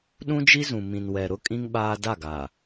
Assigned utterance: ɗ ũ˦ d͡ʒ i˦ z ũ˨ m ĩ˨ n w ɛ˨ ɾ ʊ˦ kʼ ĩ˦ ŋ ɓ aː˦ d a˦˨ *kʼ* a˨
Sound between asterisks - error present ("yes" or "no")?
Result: yes